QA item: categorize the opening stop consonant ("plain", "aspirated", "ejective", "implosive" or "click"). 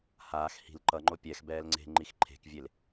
click